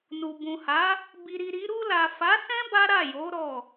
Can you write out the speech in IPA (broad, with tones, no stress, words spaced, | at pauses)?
nu˨ bũ˨ha˨˦ | bi˨ɾi˨ ɾi˨˦ ɾu˧la˨fa˨˦sɛ̃˦ ba˦ ɾa˦˨jo˨˦ ɾɔ˦˨